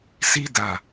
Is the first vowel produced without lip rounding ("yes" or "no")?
yes